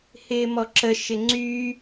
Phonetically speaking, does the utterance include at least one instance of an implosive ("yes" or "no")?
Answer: no